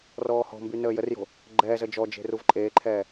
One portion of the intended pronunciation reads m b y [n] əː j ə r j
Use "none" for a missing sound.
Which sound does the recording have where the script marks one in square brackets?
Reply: n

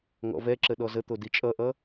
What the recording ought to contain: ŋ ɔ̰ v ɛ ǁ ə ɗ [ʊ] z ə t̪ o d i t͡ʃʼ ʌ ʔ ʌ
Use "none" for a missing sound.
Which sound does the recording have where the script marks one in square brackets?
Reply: ɔ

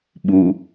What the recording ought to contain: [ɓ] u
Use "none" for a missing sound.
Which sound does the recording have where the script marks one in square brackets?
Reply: ɓ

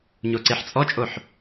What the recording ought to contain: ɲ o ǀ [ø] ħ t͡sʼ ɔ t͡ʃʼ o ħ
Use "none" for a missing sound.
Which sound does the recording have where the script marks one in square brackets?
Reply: e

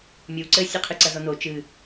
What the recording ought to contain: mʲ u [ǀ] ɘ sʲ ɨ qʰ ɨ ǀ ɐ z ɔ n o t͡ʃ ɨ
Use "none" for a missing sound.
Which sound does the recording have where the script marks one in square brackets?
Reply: ǀ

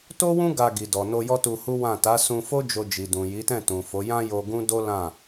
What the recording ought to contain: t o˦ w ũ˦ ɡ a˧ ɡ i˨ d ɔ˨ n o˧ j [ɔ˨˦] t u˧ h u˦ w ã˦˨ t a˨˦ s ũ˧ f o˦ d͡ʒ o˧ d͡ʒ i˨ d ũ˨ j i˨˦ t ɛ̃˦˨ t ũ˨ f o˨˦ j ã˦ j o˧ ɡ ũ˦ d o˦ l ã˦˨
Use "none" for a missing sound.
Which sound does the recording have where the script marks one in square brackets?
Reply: ɔ˦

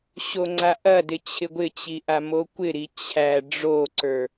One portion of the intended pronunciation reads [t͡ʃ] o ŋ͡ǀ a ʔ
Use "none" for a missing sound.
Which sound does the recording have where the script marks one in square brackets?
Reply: ɕ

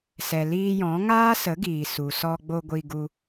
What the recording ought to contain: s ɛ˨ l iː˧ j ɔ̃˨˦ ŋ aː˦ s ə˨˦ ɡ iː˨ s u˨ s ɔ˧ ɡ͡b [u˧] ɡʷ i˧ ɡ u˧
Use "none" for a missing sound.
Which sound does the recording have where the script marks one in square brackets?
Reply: o˧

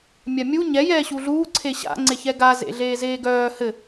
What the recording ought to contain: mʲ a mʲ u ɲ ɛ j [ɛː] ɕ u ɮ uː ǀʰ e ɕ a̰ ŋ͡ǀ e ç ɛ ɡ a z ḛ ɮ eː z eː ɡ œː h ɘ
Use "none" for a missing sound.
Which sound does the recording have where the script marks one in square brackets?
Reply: ɛː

